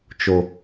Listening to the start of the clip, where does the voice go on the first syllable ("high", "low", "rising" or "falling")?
high